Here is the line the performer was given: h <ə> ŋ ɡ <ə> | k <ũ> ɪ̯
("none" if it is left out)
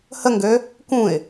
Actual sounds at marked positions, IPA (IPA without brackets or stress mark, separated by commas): ə, ø, ũ